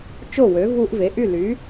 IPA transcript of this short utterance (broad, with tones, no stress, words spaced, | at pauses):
t͡ʃo˥˩wø˩˥ vu˧ʔve˩˥ʔy˥˩ ly˩˥